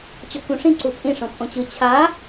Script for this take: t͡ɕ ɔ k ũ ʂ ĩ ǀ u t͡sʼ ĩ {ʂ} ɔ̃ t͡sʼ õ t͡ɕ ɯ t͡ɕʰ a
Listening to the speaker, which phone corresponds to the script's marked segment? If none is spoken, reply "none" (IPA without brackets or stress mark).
ʂ